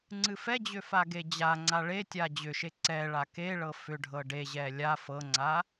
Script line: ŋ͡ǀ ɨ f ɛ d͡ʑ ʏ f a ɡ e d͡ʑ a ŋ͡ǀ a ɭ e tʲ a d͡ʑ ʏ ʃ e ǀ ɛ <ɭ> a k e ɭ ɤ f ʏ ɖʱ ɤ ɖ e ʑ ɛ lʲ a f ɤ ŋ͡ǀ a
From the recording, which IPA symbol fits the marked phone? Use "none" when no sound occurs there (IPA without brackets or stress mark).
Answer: ɭ